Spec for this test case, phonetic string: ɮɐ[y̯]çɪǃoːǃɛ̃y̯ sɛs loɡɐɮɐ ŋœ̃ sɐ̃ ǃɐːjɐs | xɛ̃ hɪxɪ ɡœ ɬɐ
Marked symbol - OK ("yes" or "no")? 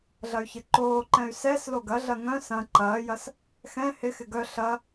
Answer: yes